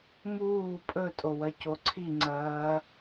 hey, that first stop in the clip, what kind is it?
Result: ejective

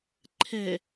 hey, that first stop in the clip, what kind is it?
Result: click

